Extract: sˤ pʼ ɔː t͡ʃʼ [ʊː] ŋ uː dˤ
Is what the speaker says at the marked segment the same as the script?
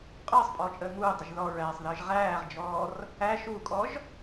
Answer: no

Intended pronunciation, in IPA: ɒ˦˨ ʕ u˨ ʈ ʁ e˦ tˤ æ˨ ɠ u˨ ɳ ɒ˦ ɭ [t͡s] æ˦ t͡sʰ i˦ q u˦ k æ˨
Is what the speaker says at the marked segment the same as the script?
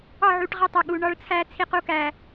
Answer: no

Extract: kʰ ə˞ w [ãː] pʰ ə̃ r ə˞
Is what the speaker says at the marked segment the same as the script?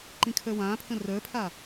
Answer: yes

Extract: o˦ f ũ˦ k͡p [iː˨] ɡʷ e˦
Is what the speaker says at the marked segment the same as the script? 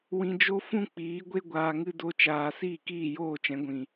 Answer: no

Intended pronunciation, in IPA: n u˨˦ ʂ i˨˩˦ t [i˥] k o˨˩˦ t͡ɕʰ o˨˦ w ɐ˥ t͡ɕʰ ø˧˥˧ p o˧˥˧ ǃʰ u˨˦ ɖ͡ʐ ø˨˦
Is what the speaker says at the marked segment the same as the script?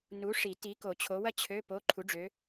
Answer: no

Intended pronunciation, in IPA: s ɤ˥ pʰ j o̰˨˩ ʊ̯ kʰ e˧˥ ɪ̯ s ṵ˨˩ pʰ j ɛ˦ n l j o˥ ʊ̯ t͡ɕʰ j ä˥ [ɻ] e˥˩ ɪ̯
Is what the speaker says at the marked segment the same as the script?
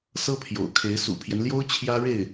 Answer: yes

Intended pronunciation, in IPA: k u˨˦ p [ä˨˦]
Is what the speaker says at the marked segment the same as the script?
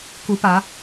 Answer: yes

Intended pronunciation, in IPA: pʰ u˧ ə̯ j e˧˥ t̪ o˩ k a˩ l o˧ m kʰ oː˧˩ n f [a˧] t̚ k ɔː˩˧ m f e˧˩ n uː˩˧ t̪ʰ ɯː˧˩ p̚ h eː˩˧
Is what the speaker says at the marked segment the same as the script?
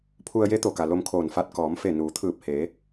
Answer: yes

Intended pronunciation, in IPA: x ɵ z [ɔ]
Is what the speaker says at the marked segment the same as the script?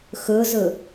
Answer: no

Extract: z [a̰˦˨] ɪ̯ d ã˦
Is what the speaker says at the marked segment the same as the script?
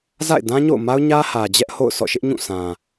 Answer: yes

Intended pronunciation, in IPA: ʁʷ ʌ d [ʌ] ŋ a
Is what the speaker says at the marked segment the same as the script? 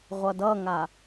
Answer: yes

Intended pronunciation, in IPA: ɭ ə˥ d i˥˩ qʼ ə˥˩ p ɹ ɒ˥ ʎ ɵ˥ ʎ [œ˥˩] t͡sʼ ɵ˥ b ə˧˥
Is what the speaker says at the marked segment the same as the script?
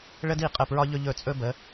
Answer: no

